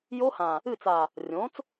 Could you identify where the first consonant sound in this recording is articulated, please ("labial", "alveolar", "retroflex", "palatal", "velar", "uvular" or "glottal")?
palatal